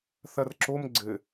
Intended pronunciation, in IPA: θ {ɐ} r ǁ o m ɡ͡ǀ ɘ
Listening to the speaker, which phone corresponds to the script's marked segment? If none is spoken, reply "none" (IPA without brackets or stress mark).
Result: ɐ